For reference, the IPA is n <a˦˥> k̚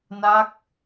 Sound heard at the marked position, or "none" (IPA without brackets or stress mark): a˦˥